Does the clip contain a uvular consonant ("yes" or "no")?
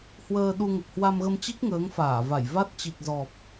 no